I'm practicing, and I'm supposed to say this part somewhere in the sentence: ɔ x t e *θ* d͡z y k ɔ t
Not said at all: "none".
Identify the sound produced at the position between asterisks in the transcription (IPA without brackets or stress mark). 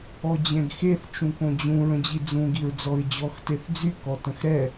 θ